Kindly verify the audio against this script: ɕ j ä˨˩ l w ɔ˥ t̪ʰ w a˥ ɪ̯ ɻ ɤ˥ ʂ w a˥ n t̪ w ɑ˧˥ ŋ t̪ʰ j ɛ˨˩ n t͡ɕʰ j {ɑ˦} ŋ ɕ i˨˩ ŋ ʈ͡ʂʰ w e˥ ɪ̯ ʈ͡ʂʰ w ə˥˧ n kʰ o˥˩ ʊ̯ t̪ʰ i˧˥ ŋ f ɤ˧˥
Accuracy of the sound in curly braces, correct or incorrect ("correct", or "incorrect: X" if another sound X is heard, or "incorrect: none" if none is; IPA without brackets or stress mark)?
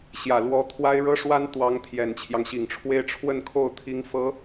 correct